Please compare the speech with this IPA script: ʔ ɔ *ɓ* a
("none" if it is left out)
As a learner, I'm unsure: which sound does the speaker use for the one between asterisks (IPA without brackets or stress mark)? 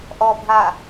bʱ